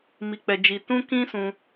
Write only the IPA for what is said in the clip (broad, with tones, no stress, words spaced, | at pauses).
mi˨k͡pɛ˨d͡ʒi˨ tũ˧kĩ˧ sũ˧